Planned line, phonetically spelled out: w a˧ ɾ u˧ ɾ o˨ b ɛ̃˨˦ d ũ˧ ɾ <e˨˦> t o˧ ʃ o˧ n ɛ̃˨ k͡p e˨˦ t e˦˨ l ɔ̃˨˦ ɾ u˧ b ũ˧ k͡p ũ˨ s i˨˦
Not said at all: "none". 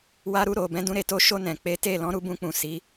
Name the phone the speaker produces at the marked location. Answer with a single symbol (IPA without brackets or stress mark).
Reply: e˧